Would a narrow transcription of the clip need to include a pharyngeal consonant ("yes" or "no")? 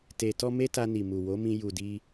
no